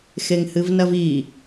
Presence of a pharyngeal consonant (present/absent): absent